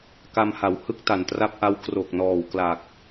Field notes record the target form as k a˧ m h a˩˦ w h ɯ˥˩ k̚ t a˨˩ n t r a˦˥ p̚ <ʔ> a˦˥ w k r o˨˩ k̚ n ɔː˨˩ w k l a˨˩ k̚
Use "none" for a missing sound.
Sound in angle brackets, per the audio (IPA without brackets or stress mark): ʔ